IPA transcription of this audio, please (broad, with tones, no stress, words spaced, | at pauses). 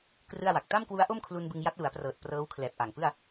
krɯ˥˩a̯wa˨˩k̚ ta˥˩mkwu˦˥a̯ ʔo˥˩mkʰlu˧n bɯ˧ŋja˦˥t̚ lu˩˦a̯prɤː˨˩t̚ prɤː˦˥wkʰlɛː˨˩p̚ʔa˨˩ŋpɯ˥˩a̯